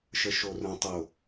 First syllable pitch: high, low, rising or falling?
low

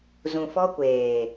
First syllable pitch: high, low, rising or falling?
low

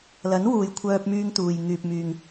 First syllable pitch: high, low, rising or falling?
rising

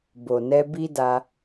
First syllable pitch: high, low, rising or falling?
low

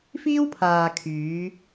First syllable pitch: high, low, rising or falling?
high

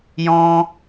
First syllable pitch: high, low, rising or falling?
high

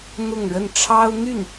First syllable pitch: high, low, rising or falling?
falling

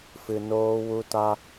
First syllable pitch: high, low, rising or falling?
low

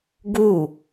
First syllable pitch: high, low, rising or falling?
falling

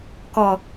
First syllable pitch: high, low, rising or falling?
low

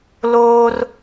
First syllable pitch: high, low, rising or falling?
high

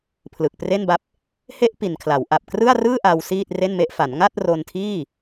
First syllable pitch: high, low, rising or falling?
low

